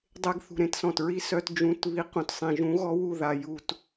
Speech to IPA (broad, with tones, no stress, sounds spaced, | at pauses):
dˤ e˧ ɡ θ ṳ˨ ɾ ẽ˦ t s ɔ̃˨ t ɹ i˦ s œ˧ t d͡ʒ ũ˨˦ t β i˨˦ q ũ˨ t sˤ ẽ˨ ʒ ũ˨˦ ɣ ɔ˦ w u˦˨ ð a˨ j u˨ t